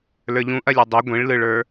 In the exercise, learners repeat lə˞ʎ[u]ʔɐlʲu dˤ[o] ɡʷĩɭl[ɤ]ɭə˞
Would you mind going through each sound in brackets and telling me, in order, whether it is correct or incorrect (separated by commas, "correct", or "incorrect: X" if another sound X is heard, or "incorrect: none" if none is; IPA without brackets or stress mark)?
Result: incorrect: ũ, correct, incorrect: ɯ